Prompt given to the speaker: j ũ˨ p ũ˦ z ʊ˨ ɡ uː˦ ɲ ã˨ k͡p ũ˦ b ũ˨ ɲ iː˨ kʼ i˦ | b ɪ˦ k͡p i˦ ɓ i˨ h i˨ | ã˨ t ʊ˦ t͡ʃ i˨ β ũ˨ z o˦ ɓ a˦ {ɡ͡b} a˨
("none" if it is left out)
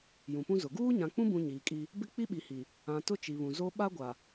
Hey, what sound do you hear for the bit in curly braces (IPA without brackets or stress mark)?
ɡʷ